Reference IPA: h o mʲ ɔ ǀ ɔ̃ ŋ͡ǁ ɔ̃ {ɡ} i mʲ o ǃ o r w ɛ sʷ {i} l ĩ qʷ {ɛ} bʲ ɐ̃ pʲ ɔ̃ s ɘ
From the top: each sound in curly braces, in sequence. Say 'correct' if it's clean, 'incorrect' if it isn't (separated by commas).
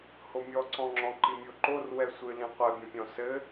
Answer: incorrect, incorrect, correct